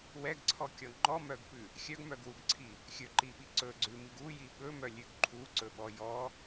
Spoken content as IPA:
w ɛ ɡ ǀʰ ɔ kʲ ɔ ŋ͡ǃ ɔ m œ ɡ p ʉ | xʲ œ ɡ m œ ɡ w u ɡ ǀʰ i | xʲ ɵ ǃ i ɓ i ǀ ɵ ɡ͡ǀ ʉ m i ɡ u j i ɓ ɵ m œ lʲ ʉ ɡ ǃʰ u ǀ ɵ ɓ ɔ j ɔ

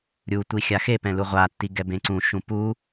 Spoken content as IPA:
ɾʲ u tʷ i xʲ a x e p ɛ̃ l u ʁʷ a tː i ɡ ɛ b ẽ ǀ ũ ʃ ũ p u

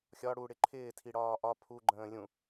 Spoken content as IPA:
xʲ ɒ ɽ u ɽ ɪ ǃʰ ɪː tʰ i ɽ ɒː ʔ ɒ pʰ u ɡ͡ǃ ə̃ː lʲ ũ

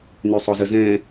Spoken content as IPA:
n y sˤ o z ə z ɛ̃

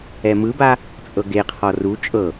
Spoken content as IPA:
ɛ m ɯ b a | t͡sʼ ɤ ɡ e qʰ ɔ r u t͡ʃʼ ɤ

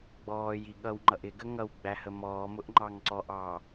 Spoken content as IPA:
ɡ͡b ɔː j i ɠ ʌ w ŋ͡ǃ ʌ ʔ ɪ ɡ ə ŋ ʌ w ɡ͡b æ h ə m ɔː m ʊ ʔ ŋ͡ǃ ɑ ŋ ǀ ɔ ʔ ɑː

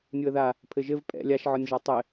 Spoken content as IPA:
nʲ u ə̯ ð a | pʰ ɘ ʒ ɘ v pʼ ɛ̰ lʲ a ʃ ʕ ɔ nʲ ʒ a tˤ ɘ

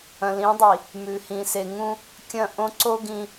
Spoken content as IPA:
ɐ̃˨ l ĩ˨˦ dˤ i˨ | m ʉ˨ h ĩ˨ s e˨ ŋ ũ˦ | kʲ ɐ̃˦˨ ʔ õ˦ ǀ o˦ ɡ ĩ˦

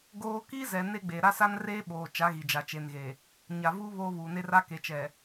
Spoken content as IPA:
ɡ oː˦ k i˦ z ɛ˨ n e˦ ɡ͡b e˨ ɾ a˦ s a˦ n r eː˦ ɓ oː˨ t͡ʃ a˨˦ ɣ i˨ d͡ʒ a˨ t͡ʃ e˨ n ɣ e˨ | ɲ a˨ v u˦ β oː˦ β uː˨ n e˦ r a˦ k e˨ t͡ʃ ɛ˨

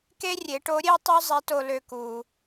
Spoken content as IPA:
k e˥ rʲ e˩˧ ʈ o˧˥ ɾʲ e˥ tˤ ø˥ zˤ e˧˥ t o˧ l ø˧ k u˩

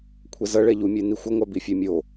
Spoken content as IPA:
kʷʰ ɛ z ʌ ɭ ɛ ʎ u mʲ e n i xʷ ʌ ŋʷ a b i fʲ ɛ mʲ o

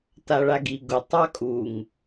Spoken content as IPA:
t a ɭ a ɡ i ɡ ʊ tˤ ɑ kʼ u ŋ

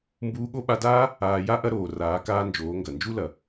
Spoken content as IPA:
m b uː˧ ɠ o˦ ɓ a˧ d aː˦ | aː˨ j a˦ ʔ ɐ˧ ɾ oː˨ r aː˨˦ k aː˦ n d͡ʒ oː˨˦ ŋ ɡ ɐ˨ n d͡ʒ u˦ l ɐ˨

